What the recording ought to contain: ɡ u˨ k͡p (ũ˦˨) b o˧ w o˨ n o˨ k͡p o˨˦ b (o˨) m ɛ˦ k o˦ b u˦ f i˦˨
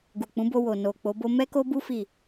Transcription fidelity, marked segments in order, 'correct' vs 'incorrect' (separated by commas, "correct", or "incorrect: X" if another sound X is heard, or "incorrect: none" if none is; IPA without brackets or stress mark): incorrect: ũ˨˦, incorrect: o˦